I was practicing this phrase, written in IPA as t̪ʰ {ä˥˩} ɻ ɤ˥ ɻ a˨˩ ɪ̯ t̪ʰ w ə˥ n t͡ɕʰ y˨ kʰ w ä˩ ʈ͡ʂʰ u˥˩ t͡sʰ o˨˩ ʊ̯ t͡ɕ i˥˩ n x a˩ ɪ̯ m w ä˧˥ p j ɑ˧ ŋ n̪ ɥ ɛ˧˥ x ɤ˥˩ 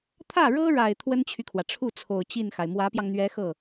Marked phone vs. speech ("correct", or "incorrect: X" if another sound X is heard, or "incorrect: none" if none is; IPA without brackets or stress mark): correct